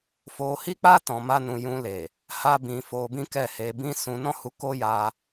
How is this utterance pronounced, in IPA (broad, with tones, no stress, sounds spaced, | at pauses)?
f o˧ h i˦ k͡p a˦ t ɔ̃˧ m a˦ n ũ˧ j ũ˧ l e˨ | h a˦ b ĩ˧ f o˧ b ĩ˦ k ɛ˦˨ h e˧ b ĩ˦ s ũ˧ n ɔ̃˦ h u˧ k o˦ j a˧